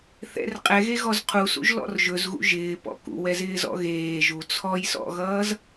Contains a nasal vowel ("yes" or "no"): no